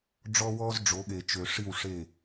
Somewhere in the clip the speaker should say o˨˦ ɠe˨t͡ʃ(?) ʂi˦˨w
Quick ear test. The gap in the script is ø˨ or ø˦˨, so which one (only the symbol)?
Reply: ø˨